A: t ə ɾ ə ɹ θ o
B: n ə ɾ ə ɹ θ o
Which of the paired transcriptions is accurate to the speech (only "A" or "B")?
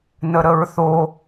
B